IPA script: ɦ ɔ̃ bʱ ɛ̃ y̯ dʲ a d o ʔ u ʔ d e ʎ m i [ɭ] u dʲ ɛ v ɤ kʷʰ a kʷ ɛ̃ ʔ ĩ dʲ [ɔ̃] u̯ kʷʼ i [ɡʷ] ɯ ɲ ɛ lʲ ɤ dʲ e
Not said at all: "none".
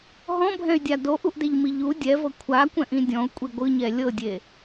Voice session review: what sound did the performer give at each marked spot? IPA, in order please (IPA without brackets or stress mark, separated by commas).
ʎ, ɔ̃, ɡʷ